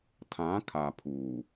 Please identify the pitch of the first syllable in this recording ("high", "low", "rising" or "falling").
rising